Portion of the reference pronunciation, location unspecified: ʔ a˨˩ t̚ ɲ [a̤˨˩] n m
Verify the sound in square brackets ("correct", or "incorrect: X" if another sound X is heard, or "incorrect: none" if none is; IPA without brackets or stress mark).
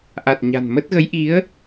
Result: correct